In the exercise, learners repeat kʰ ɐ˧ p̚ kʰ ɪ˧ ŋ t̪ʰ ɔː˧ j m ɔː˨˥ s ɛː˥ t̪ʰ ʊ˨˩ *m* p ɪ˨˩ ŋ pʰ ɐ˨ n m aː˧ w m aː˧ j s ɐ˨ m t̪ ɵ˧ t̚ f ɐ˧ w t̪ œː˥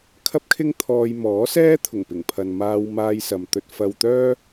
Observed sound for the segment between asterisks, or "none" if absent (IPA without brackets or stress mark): ŋ